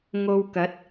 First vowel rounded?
yes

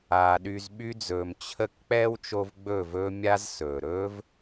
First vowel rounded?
no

